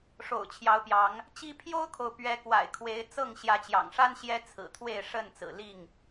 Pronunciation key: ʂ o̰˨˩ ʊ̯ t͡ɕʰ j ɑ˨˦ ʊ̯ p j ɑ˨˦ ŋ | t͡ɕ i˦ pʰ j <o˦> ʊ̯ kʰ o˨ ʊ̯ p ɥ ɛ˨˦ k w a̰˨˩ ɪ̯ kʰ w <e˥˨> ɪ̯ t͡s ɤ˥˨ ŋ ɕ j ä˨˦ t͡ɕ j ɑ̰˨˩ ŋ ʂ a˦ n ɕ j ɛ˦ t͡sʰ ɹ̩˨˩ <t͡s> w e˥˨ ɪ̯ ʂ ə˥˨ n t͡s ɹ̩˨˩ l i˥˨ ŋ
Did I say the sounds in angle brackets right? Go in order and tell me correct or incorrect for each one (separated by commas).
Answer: correct, incorrect, incorrect